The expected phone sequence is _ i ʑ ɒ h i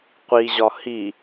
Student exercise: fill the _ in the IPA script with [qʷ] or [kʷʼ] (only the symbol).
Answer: qʷ